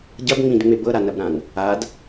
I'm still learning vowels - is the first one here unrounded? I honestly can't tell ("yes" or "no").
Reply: yes